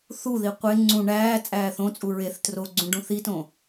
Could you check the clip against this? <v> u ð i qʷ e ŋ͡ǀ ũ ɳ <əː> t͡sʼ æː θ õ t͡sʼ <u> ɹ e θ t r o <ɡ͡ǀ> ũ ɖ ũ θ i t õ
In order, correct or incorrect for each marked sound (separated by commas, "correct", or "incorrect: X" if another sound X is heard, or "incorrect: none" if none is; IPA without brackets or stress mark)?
incorrect: θ, incorrect: æː, correct, correct